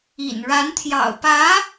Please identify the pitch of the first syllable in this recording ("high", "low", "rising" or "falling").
low